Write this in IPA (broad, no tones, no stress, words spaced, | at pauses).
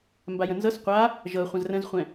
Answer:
mbajə̃nzɤs qʷa | ʒɤ χʷə̃zrə̃zχʷɛ̃